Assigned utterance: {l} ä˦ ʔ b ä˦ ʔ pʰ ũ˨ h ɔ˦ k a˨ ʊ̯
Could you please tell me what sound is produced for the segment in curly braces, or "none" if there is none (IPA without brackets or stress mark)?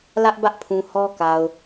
l